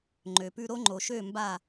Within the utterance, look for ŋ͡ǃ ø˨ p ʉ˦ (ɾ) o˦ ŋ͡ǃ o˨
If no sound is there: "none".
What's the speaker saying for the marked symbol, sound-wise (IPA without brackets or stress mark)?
ɾ